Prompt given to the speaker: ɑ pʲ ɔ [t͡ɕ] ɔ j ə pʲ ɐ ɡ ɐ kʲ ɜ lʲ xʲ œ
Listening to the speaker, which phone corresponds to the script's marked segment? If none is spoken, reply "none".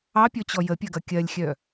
t͡ɕ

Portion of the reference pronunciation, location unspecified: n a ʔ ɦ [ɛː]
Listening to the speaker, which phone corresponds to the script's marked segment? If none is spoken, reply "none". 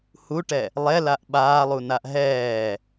ɛː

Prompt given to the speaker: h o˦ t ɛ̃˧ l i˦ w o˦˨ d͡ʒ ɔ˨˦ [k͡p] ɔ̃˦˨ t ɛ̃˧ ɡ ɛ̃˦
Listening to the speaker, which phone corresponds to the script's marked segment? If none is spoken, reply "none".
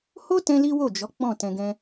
k͡p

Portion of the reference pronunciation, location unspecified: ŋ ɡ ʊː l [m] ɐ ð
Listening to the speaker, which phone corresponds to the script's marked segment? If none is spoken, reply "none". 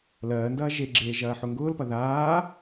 p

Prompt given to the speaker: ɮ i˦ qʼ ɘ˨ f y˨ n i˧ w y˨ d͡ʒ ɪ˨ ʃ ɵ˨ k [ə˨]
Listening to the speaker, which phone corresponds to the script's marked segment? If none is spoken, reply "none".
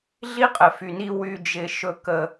ə˨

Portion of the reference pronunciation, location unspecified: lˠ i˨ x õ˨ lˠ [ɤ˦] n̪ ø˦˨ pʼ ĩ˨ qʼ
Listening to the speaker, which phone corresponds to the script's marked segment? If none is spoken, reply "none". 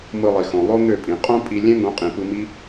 o˦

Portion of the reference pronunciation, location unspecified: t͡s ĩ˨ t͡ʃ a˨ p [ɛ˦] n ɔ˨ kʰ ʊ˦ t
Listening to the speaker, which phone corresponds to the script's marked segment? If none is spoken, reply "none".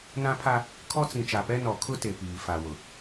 ɛ˦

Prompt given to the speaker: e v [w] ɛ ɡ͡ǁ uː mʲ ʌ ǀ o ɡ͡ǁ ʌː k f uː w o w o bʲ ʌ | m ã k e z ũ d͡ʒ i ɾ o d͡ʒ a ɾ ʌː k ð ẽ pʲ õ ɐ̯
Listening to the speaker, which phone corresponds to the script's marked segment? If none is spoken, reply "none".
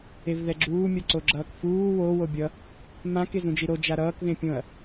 ð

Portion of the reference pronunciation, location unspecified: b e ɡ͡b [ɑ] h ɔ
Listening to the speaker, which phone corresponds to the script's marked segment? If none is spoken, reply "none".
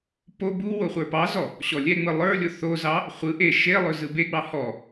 ɑ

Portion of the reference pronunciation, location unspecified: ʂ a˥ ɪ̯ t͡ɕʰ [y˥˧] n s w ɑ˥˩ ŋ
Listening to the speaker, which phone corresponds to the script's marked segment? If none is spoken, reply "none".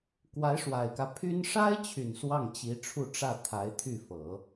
y˨˩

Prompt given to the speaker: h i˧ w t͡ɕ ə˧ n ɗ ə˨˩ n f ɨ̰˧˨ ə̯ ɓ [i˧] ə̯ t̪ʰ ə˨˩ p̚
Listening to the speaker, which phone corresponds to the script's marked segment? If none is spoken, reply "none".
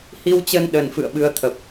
ɨ˧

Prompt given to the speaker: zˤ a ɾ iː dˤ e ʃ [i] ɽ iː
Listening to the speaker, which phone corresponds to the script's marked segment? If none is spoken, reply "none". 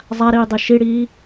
i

